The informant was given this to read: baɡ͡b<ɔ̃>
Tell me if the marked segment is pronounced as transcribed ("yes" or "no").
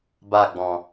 yes